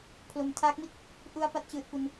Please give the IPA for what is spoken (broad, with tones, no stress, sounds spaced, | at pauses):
pʰ l o˨˩ m tʰ aː˦˥ k̚ m i˥˩ t̚ | ʔ u˧ a̯ p a˥˩ t̚ t͡ɕ ɯː˨˩ t̚ p u˧ n